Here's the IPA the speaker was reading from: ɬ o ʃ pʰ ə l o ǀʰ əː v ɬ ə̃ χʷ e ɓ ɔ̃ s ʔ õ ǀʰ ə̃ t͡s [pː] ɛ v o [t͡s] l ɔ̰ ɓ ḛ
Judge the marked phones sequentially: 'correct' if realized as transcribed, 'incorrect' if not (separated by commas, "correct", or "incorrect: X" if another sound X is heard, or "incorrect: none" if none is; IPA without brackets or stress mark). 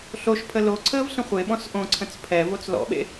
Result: incorrect: pʰ, correct